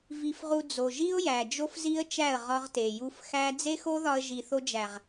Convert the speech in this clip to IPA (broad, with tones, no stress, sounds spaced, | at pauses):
v i˧ f ʁ u˧ d͡z o˨ ʒ i˦ ʊ̯ j æ˨ d͡ʒ o˦ f z i˦ ə̯ t͡ʃ æ˦˨ ə̯ ʁ ɒ˦ ʁ t e˨ j u˧ f x æ˦ d͡z e˦ x o˦ ð ɒ˧ ə̯ ʒ i˨ θ o˧ d͡ʒ æ˨ ʁ